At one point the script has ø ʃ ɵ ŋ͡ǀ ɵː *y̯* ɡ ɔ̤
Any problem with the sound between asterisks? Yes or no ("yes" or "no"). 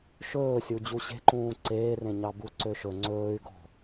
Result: no